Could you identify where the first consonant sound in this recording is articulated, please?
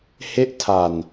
glottal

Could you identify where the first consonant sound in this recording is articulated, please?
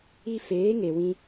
labial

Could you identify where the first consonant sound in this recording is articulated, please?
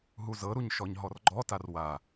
glottal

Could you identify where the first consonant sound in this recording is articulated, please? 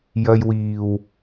palatal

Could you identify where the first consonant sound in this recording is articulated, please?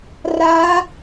alveolar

